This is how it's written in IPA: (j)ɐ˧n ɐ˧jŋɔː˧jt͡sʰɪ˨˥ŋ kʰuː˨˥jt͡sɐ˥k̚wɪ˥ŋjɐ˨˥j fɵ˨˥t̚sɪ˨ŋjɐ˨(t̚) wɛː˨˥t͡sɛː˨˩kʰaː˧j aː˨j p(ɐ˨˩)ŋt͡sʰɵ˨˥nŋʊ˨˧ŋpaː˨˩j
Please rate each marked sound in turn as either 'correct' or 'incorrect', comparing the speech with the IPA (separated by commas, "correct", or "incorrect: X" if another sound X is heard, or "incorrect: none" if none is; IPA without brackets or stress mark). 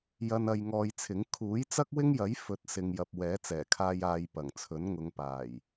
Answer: correct, incorrect: p̚, correct